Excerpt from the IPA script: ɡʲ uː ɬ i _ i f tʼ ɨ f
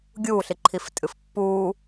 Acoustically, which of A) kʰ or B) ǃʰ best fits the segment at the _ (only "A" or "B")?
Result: B